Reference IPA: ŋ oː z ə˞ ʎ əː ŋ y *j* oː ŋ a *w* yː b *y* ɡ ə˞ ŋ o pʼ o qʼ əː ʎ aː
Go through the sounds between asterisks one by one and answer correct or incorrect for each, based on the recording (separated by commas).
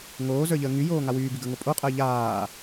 correct, correct, incorrect